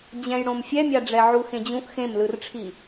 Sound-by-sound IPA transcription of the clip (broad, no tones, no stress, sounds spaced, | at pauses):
d͡ʑ ɛ̃ j ɽ õ m fʲ ɛ mʲ a ɖ͡ʐ ɛ ʕ u x ẽ d͡ʑ ũ ʔ x ẽ m l ɯ r ʈ͡ʂʰ i